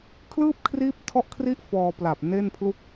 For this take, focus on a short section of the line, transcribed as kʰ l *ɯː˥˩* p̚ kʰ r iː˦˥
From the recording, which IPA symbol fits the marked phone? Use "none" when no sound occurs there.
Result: ɯː˥˩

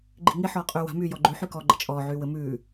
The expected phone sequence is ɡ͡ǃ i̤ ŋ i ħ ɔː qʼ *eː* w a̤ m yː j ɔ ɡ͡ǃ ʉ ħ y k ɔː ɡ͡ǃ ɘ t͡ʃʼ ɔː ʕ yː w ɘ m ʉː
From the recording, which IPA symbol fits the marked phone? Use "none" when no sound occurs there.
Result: yː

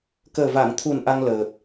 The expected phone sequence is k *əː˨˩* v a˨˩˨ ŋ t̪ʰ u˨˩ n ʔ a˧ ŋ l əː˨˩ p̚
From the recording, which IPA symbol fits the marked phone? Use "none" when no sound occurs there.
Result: əː˨˩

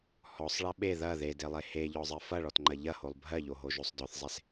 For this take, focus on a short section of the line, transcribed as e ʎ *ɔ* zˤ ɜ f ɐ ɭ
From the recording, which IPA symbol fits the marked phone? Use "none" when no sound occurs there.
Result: ɔ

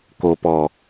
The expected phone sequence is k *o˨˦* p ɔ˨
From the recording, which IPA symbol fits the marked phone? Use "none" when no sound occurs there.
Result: o˨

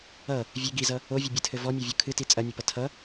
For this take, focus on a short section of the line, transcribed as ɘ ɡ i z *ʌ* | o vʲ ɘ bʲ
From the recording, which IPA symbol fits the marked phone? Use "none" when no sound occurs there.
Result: ʌ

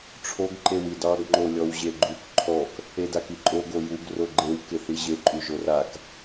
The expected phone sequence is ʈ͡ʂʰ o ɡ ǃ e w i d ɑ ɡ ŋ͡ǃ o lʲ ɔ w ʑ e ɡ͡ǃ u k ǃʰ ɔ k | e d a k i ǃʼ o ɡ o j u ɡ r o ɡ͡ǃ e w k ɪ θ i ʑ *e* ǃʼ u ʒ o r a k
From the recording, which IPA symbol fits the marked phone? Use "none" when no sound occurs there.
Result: e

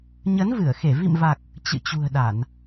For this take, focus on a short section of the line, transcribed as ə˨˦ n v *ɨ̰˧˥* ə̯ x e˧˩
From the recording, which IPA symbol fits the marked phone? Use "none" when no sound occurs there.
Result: ɨ˧˩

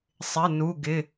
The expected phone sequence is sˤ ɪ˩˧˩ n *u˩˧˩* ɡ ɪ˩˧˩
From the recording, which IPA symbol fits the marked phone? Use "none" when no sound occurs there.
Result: u˩˧˩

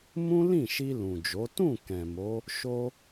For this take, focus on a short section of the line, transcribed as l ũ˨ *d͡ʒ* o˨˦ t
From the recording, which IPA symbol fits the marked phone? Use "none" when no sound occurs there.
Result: d͡ʒ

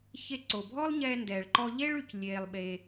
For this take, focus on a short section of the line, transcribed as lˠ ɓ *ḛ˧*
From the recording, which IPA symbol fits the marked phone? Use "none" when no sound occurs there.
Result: e˧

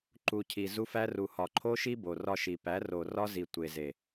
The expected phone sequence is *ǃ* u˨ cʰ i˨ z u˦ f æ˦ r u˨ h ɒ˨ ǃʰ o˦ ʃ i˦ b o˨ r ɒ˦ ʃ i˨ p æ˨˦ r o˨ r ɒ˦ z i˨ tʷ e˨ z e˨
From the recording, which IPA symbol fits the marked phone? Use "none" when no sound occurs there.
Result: ǃ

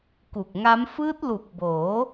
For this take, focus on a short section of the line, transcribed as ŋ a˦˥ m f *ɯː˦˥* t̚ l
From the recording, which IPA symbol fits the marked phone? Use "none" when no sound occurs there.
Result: ɯː˦˥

